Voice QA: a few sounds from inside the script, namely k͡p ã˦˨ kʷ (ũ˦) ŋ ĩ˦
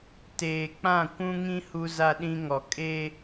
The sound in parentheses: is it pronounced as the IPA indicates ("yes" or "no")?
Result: yes